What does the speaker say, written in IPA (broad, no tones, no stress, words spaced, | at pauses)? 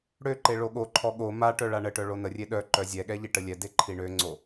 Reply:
ɽøǃe ɭoɠoǃʰɔ ɠo maʈœ ɭaɳəʈœ ɭonərʲe ɗœ ǃœzʲɛɠɛ ʎiʈəlʲɛde ǃʰiɳøŋ͡ǀo